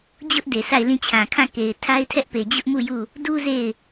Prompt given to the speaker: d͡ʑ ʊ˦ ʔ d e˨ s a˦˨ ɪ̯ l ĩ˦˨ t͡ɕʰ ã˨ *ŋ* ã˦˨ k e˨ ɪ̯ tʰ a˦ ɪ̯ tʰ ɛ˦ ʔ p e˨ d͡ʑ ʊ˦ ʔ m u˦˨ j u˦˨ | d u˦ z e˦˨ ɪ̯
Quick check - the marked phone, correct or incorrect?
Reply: incorrect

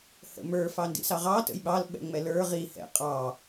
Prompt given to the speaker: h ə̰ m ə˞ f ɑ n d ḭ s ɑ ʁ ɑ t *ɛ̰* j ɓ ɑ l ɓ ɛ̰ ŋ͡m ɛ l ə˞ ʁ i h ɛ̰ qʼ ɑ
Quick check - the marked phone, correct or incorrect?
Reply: incorrect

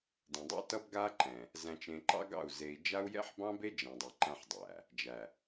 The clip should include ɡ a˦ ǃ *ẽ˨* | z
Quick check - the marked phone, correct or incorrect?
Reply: incorrect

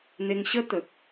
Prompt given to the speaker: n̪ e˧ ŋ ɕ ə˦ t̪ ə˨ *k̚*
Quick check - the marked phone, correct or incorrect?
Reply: correct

